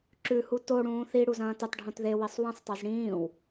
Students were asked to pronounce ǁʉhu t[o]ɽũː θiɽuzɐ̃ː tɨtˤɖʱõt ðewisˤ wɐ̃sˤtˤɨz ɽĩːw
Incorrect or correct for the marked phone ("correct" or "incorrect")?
correct